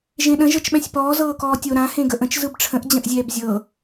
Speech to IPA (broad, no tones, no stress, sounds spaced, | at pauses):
ʒ ẽ ɗ ə̃ ʒ ɤ t͡ʃ ɓ ɛ̃ sʲ p ɔː z ɤː k ɔː tʲ o ɾ ã h ẽ ɡ ə ʔ ə̃ t͡ʃ z ɯ b ʈ͡ʂʰ ə̃ ʔ d͡ʑ ə̃ ʔ zʲ ɛː b zʲ ɤ